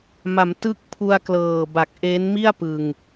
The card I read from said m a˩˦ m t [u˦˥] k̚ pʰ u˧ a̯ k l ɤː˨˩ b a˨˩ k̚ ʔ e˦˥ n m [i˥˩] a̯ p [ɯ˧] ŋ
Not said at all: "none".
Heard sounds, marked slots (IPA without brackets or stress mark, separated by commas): ɯ˦˥, i˥˩, ɯ˧